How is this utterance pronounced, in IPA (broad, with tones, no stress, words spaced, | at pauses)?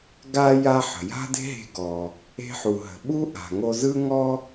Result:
ɡa˥ ja˥ħə̤˩ ja̤˥de̤˥ɦe̤˧ ɡɔ˩ | e̤˥ħu˩ɦə̤˩ ɓu˥ʔa̤˩ŋo˧ zɯ˥ŋɔ˥